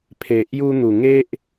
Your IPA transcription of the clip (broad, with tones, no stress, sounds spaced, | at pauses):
pʰ e˨ ʔ j u˧ n̪ u˨˩ ŋ e˦ ʔ